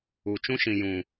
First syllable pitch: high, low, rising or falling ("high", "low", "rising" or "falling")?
low